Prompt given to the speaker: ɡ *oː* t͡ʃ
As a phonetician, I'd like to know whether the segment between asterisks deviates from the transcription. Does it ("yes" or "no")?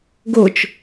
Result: yes